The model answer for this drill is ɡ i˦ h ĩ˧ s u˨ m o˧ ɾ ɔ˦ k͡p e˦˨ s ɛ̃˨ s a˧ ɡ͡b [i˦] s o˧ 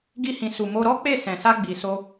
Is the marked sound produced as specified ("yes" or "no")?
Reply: no